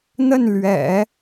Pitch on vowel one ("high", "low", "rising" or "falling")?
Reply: falling